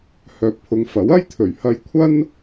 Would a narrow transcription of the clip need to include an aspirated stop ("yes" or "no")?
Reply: yes